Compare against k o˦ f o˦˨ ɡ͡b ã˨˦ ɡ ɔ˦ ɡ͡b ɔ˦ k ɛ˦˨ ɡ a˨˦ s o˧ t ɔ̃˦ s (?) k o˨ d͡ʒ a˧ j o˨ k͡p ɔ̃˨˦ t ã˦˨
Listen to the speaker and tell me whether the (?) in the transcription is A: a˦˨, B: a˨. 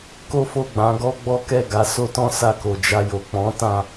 A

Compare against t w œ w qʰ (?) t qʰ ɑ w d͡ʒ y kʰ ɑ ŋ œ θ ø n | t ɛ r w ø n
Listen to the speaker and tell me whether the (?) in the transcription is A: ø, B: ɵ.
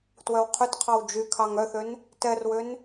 B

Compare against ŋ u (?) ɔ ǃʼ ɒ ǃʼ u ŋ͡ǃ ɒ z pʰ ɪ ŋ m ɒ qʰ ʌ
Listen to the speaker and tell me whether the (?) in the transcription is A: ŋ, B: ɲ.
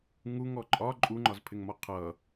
A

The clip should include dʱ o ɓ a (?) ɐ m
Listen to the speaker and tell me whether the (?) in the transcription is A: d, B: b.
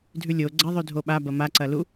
B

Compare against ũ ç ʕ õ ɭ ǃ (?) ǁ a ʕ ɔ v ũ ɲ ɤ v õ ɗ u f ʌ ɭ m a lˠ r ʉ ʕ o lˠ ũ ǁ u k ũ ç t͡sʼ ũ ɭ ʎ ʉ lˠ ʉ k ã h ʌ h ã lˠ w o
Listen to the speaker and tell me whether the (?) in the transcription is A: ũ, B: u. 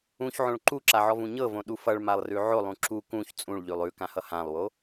B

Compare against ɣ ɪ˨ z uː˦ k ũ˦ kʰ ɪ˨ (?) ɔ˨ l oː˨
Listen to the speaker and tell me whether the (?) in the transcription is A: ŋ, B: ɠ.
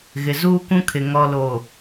A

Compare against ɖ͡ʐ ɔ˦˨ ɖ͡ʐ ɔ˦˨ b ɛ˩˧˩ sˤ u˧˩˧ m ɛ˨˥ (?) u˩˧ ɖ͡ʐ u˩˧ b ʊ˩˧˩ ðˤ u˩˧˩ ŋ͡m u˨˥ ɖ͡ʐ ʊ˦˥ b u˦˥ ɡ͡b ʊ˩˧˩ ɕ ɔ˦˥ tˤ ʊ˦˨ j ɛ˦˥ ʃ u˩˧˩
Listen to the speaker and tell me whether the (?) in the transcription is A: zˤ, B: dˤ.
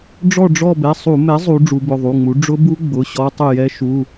A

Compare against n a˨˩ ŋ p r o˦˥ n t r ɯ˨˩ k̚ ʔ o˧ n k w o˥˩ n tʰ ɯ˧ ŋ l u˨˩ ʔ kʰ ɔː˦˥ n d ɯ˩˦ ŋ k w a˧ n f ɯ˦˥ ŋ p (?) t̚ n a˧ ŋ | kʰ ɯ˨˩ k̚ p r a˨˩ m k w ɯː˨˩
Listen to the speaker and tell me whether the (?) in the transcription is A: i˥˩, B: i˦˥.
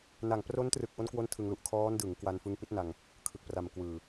B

